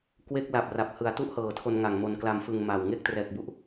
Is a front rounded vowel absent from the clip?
yes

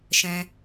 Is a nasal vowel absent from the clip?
no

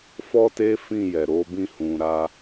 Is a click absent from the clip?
yes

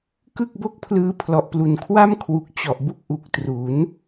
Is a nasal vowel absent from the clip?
yes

